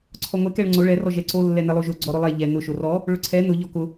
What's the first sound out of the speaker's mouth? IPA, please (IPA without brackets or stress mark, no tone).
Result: ǀʰ